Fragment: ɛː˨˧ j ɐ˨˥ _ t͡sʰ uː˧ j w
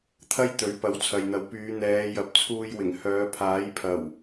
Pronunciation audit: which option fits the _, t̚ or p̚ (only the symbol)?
p̚